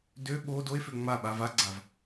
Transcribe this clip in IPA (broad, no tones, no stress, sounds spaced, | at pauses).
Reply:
d ø ɓ o d o e̯ f ø ŋ͡m a ɓ a v a ɡ͡ǀ a v